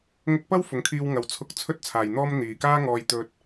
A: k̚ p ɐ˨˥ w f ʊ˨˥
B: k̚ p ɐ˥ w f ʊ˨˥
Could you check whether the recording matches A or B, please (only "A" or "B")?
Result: B